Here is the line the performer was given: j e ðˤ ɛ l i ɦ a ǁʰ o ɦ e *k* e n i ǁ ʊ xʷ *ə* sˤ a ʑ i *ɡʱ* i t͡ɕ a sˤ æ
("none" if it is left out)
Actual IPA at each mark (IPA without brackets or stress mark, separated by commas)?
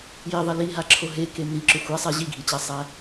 k, a, ɡʱ